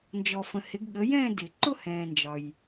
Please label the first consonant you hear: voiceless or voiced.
voiced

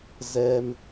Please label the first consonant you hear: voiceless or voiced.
voiced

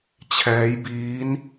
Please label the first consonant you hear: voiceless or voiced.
voiceless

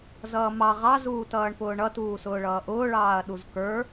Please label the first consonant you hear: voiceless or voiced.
voiced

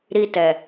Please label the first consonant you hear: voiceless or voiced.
voiced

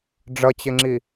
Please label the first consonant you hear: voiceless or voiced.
voiced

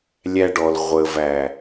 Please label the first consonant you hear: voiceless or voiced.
voiced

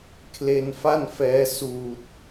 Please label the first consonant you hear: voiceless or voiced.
voiceless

